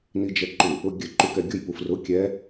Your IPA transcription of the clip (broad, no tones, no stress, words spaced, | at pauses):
nid͡ʒɛǃu | ʊɡʲɘ ǃukɛɡʲʊj pufrʊ kʲɛ